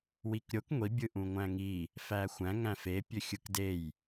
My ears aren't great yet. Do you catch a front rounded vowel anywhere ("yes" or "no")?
yes